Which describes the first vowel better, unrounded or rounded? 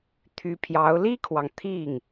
rounded